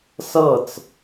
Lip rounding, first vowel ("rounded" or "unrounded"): unrounded